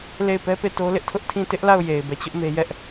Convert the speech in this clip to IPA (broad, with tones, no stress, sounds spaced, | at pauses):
l e˦˨ ɪ̯ p ɛ˦ p e˦˨ t o˦ l ɪ˦ ʔ tʰ ʊ˦ ʔ tʰ ĩ˦˨ t ɪ˦ ʔ l a˦˨ ʊ̯ j e˨ ɪ̯ b ɛ˦˨ t͡ɕ ʊ˦ ʔ m e˦ j ɛ˦ ʔ